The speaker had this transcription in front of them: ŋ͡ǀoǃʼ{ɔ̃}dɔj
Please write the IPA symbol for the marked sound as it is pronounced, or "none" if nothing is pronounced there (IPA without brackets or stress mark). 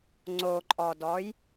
ɔ